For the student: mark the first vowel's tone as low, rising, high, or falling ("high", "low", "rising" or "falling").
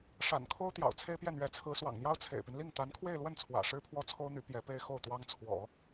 low